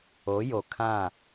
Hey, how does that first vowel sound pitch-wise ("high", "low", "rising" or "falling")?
rising